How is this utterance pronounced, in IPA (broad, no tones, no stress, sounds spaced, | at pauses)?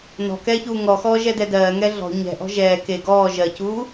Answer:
n ɔ̤ k ɛː ç uː ŋ ɔ x ɔː ʒ ɛ d ɛ d ɜː ŋ ɛ ɮ ɔ̤ ɲ ɛ̤ ʔ ɔ̤ ʒ ɛː k e ɡ ɔː ʒ ɜ c uː